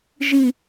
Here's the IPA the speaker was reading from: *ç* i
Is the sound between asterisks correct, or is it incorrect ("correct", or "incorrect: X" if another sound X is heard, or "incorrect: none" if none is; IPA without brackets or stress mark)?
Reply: incorrect: ʒ